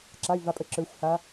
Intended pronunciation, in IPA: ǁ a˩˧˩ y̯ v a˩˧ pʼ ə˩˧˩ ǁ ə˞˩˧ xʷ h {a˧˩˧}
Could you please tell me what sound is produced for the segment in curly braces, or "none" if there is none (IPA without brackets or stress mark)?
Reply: a˩˧